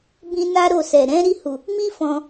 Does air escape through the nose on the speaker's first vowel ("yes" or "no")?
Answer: yes